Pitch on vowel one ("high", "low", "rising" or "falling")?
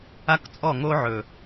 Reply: high